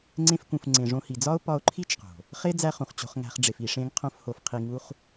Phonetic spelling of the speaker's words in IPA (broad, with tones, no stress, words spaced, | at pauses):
ŋ͡ǀẽ˧fkũ˨f ŋ͡ǀẽ˨ʐõ˧hi˨d͡zɒ˦o̯ pɒ˧o̯ ǃʰi˦t͡ʃqo̤˨ | χe˦ d͡zæ˦χũ˨χ t͡ɕo̤˨χŋæ̤˨χ ɖ͡ʐe˨fi˨ʂẽ˧ŋ qʰõ˦fho˧f qʰi˧ŋu˦χ